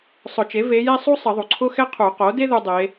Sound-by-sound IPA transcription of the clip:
sˤ ʊ˨˩˦ t͡ʃ e˩˥ v e˧˥ j e˥ sˤ u˥ sˤ ə˨˩˦ ðˤ u˩ ǀʰ ʊ˥ x ɛ˥ qʰ u˨˩˦ q o˩˥ d e˥ ð u˥ dˤ e˧˥

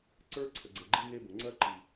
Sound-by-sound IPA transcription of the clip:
ǀ ə˞˦ ǀʰ ə˨ ɡ͡ǀ e˨ ɡ͡ǃ i˦ ŋ e˦ b ə˨ ŋ͡ǀ ɜ˦ ǃ i˨

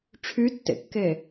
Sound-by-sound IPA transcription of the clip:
ʈ͡ʂʰ y tː ḛ kː e

